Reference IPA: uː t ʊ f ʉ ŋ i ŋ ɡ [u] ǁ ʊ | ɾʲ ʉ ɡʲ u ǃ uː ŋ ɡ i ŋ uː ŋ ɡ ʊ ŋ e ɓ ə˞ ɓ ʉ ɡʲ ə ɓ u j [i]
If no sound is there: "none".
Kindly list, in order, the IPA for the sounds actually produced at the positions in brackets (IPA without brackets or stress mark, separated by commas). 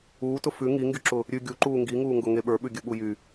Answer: y, y